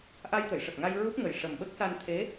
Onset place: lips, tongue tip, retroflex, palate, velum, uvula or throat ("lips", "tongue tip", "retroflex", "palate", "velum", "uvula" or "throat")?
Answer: throat